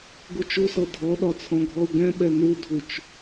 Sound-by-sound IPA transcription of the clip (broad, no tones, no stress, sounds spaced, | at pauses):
ɡ u t͡ʃ u s ɤ dʱ ɔ ɗ ɒ t͡sʰ ɔ̃ ɡʱ ɔ u̯ ɡ ɛ̃ ɓ ɛ n u dʱ u t͡ʃ